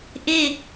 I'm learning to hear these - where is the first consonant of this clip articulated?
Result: throat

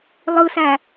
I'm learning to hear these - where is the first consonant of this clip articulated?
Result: tongue tip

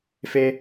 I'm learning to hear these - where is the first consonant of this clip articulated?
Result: lips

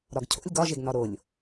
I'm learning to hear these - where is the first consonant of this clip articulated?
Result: tongue tip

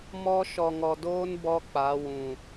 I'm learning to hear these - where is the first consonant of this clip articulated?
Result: lips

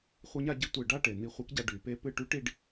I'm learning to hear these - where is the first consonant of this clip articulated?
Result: uvula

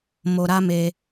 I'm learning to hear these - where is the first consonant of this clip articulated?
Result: lips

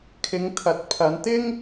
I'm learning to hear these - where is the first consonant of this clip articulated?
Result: velum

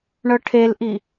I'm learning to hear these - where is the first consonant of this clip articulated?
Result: retroflex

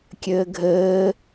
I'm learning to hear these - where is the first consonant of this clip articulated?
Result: velum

